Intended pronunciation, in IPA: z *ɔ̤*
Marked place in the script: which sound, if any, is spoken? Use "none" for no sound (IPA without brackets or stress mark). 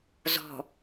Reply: ɔ̤